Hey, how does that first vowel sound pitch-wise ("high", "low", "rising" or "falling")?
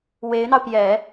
rising